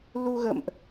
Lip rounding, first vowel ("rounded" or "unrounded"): rounded